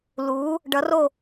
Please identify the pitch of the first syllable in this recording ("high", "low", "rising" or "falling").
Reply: rising